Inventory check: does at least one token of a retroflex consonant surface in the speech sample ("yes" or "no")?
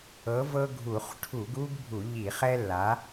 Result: yes